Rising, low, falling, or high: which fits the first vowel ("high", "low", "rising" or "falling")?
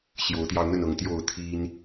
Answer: rising